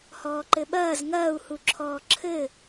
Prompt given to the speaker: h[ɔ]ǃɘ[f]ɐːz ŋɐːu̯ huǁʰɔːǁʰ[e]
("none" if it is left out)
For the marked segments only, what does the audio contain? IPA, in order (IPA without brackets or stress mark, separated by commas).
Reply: ɔː, ɓ, ɘ